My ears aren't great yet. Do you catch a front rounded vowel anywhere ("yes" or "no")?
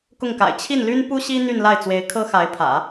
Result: yes